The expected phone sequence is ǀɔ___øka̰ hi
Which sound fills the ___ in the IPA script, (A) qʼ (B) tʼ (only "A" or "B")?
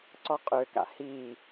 A